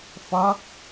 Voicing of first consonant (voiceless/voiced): voiceless